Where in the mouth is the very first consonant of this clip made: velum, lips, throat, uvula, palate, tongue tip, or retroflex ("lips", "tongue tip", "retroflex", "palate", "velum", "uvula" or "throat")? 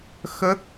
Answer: velum